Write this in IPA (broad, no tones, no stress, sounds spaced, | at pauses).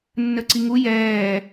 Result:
nː ə ǀ i ŋ u j ɛː